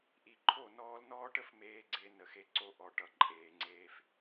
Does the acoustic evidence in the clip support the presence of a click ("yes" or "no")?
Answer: yes